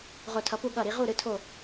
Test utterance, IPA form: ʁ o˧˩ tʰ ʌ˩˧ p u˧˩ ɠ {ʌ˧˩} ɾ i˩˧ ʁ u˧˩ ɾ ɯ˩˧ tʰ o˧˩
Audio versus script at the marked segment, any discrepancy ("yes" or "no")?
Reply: no